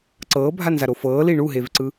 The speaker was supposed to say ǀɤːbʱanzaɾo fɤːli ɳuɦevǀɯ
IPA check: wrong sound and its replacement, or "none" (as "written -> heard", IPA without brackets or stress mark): none